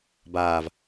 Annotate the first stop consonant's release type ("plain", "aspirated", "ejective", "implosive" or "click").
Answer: plain